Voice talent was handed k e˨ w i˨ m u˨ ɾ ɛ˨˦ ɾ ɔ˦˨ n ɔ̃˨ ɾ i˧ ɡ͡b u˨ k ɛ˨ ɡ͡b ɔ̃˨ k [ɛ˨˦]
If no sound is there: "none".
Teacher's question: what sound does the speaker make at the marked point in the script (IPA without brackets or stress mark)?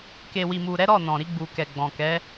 ɛ˨˦